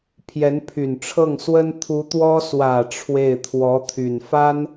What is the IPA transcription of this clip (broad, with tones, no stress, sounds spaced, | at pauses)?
pʰ j ɛ˧˥ n pʰ y˨˩ n ʈ͡ʂʰ ɤ˥˩ ŋ s w ə˥ n t̪ʰ u˧˥ t̪ w ɔ˥ s w ä˨˩ ʈ͡ʂʰ w e˥˩ ɪ̯ t̪ʰ w ɔ˧˥ t̪ʰ y˨˩ n f a˥ n